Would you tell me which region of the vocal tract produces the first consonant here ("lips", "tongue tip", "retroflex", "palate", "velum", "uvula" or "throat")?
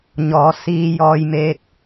palate